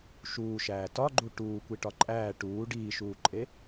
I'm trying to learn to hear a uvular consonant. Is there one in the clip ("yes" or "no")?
no